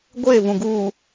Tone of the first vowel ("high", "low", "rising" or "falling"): falling